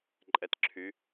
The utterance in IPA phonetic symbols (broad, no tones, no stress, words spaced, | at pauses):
ǃʼɛtǁʰy